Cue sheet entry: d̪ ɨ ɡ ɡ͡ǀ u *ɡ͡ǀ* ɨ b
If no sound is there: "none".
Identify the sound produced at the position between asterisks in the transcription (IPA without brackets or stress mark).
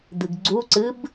ǀ